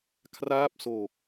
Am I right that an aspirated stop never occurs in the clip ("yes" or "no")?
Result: no